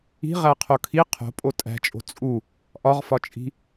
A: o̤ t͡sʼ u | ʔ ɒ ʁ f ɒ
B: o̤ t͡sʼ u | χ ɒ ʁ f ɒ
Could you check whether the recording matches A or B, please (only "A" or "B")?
A